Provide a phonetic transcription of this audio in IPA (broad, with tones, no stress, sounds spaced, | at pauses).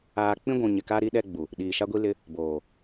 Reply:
aː˦ k͡p ĩ˦ ɡʷ ũ˨ ɲ ɪ˨ k a˦ ɾ i˦ ɗ ɛ˦ ɡ͡b u˨ | ɗ iː˨ ʃ a˦ ɡʷ i˦ l ɪ˦ | b oː˨